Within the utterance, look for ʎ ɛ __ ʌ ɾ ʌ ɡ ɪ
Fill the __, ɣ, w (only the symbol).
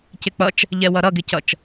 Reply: w